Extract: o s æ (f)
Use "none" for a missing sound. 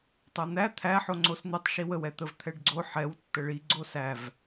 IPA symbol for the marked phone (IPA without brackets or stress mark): v